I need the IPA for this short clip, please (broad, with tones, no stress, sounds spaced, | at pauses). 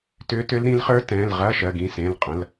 t ʏː˧˥ t ʏ˧˥ l ɾ ĩ˧˥ l χ ə˞˧˥ t ɛ̃˩˧˩ l ʁ ɐː˧˥˧ ʃ ɜ˩˧˩ ɡ ĩ˩˧˩ s ẽ˩˧˩ l qʼ ɐ̃˩˧˩ l